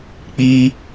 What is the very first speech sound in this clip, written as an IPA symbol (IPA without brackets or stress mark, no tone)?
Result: k͡p